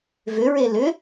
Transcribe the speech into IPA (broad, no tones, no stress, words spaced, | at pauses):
vʏɹe lʏ